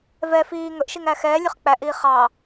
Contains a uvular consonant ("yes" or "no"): yes